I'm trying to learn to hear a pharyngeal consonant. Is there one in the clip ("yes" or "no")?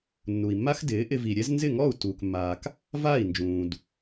no